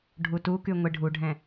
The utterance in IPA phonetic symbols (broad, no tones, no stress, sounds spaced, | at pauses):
ɖʱ u t u k y ŋʷ e ɖʱ u ɖʱ ɛ̃